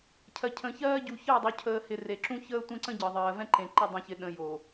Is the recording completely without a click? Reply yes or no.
no